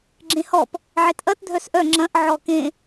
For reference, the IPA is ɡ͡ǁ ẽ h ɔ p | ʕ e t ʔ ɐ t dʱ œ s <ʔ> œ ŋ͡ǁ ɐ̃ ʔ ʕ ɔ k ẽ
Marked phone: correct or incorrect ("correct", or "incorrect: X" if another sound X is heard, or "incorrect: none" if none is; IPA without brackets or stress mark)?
correct